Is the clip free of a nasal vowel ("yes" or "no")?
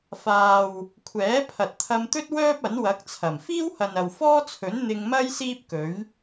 yes